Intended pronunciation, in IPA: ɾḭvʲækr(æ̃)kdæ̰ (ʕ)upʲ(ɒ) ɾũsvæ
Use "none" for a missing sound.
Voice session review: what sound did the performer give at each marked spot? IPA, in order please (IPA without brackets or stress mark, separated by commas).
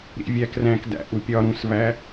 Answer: æ̃, ʔ, ɒ